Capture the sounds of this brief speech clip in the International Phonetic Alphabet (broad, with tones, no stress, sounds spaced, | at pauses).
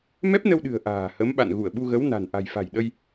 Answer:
m ɛ˦˥ p̚ n ə˧ w ɗ ɨ̤˨˩ ə̯ ʔ a̤ː˨˩ h ə˨˦ m ɓ a̰˧˨ n ɣ u˧˩ ə̯ ɓ u˧ ɣ ə˨˦ w n a̤˨˩ n ʔ a̤˨˩ j f a̤˨˩ j ɗ ə˧ j